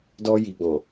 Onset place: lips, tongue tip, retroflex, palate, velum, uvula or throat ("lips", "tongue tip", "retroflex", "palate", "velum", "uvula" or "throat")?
tongue tip